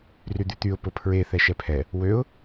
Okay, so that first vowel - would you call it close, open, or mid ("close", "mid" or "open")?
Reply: close